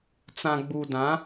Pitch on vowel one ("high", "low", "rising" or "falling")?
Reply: low